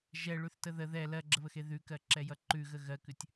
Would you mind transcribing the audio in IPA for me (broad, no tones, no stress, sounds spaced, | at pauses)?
ʒ ɛ ɭ ʉ θ t ə ð ə ð ɛ l ɜ ɡ͡ǁ ə β ə x e ð ʉ k ɜ ǁ ɛ j ʌ ǃ ʉ ɣ ə ɣ ɜ k ʉ tʲ